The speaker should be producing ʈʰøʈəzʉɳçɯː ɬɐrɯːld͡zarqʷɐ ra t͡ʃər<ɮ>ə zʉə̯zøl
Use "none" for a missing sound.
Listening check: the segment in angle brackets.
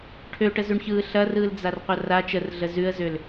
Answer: ɮ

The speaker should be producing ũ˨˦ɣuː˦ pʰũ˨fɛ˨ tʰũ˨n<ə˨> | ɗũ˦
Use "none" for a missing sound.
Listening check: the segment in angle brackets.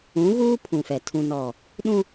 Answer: ɔ˨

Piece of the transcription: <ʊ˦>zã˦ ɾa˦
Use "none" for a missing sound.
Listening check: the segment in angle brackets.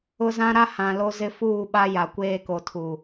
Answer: ʊ˦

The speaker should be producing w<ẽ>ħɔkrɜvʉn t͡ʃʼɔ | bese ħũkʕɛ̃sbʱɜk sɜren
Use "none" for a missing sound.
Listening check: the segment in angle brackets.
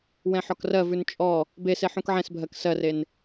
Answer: ɛ̃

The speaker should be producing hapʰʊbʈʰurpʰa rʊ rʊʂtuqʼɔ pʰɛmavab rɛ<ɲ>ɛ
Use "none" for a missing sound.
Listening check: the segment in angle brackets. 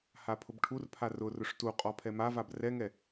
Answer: ŋ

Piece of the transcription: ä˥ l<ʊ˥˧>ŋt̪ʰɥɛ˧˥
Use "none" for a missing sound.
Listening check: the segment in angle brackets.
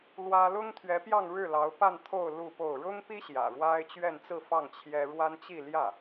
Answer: ʊ˥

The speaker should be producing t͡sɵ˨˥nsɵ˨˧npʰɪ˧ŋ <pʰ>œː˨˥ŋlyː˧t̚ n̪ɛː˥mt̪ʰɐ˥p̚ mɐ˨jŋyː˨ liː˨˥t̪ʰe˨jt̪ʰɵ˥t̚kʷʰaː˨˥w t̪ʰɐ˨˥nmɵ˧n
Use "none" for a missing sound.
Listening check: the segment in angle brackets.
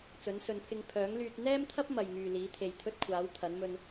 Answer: pʰ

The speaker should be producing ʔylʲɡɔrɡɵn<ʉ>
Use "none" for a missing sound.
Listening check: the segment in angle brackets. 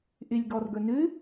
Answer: ʉ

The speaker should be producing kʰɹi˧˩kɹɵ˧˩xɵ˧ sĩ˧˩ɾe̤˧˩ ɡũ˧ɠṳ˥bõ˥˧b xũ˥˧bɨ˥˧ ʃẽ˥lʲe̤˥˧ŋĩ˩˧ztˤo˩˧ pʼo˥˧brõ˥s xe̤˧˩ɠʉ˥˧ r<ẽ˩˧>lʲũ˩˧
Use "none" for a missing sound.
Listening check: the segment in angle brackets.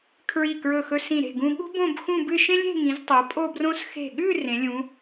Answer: ẽ˩˧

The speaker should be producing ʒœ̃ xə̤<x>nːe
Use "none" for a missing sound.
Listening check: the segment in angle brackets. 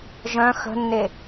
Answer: none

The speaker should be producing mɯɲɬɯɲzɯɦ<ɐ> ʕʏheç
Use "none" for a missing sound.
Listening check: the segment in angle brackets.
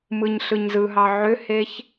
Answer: ɑ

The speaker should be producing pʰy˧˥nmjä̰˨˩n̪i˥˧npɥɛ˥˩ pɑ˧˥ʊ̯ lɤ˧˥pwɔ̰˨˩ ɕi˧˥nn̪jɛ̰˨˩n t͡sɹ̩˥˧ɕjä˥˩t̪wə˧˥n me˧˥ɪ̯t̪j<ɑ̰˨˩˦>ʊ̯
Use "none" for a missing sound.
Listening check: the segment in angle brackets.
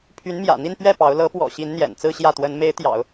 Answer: ɑ̰˨˩˦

